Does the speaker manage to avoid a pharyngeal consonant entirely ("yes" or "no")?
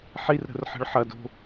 no